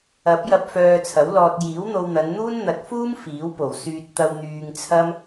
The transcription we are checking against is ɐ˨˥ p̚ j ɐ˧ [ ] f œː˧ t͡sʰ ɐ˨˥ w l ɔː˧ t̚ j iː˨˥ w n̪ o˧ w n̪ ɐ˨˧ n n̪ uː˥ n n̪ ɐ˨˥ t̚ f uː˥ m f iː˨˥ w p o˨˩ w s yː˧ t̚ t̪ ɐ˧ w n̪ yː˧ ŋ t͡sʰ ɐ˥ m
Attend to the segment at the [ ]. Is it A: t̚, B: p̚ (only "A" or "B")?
B